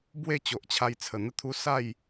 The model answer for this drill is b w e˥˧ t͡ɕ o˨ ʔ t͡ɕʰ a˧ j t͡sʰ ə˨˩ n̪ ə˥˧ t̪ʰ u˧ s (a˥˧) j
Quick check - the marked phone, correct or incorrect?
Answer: correct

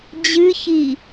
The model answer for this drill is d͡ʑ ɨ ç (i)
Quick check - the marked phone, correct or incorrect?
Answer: correct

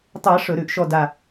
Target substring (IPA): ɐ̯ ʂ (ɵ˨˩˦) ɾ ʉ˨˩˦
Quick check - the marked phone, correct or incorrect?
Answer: correct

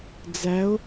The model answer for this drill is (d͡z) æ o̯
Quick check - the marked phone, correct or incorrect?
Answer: correct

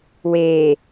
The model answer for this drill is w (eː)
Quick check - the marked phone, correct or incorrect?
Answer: correct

